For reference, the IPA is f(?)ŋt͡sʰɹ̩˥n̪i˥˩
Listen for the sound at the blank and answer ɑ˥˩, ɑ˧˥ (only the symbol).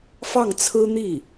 ɑ˥˩